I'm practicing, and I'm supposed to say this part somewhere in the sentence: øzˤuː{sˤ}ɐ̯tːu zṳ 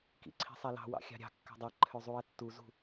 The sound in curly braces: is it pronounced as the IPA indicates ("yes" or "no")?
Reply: no